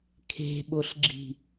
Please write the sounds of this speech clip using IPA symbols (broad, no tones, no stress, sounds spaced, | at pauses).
kʰ e̤ ɓ o ɬ ɡ͡ǁ i̤